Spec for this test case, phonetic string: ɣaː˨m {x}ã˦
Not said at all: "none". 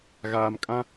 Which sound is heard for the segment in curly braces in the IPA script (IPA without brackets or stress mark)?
kʼ